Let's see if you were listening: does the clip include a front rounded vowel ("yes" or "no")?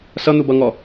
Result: no